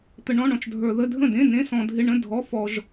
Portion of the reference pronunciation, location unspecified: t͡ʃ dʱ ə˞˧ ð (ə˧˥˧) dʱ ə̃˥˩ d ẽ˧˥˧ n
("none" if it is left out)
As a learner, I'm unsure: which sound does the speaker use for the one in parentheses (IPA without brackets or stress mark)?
ə˧˥˧